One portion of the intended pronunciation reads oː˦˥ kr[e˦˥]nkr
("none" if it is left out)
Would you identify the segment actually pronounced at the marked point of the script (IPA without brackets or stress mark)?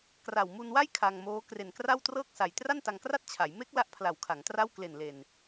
e˨˩